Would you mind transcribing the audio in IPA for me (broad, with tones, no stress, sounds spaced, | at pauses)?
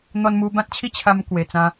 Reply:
n̪ ɔ˧ n m u˧ b ã˦ t̚ t͡ɕʰ i˦ t͡ɕʰ a˧ m k w e˨˩ t͡s ã˧